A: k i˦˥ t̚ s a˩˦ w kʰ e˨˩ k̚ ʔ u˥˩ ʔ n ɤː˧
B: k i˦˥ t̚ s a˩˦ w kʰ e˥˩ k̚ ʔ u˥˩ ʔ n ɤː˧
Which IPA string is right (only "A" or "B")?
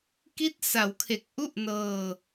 A